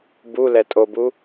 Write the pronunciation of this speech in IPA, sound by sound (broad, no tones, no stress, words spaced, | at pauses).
bulɛ tʼobu